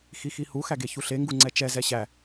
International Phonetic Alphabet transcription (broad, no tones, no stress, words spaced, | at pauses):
xixihu xæɡeçuɬe ŋɡuŋ͡ǀɛt͡ʃɛ zɛɕæ